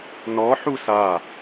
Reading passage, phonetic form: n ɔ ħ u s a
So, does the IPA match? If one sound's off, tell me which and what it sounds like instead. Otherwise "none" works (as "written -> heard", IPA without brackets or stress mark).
none